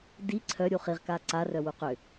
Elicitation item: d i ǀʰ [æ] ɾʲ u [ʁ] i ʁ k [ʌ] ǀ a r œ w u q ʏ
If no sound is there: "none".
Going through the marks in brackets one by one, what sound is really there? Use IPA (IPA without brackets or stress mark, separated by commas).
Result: œ, χ, a